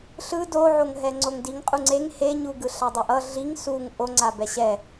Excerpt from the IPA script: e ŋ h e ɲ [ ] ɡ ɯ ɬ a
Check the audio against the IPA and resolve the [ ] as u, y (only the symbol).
u